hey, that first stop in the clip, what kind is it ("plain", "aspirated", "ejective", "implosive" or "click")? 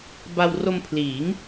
plain